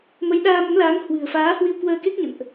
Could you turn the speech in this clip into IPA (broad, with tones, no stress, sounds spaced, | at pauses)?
m ə˨˦ j ɗ aː˧ m ə˨˦ m l aː˨˦ ŋ h w ɨ̤˨˩ ə̯ f aː˨˦ h w i˧ w k w əː˧ k e˦˥ k̚ ɲ ə̰˧˨ n ʔ